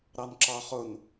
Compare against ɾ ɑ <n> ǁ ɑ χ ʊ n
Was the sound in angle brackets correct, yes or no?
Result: yes